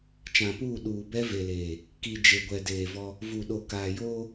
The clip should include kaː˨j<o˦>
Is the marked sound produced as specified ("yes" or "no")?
no